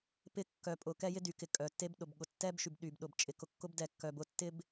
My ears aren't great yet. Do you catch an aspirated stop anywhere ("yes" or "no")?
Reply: no